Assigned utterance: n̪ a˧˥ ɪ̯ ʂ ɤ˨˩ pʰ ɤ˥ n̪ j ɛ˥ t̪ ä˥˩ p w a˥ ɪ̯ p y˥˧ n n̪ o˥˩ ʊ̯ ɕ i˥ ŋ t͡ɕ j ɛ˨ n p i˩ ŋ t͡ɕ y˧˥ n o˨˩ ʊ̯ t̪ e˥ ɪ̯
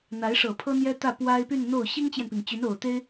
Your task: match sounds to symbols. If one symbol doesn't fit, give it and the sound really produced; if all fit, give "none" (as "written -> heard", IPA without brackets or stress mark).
none